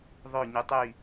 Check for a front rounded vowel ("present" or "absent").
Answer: present